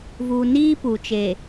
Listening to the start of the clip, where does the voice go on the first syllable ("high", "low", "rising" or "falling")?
low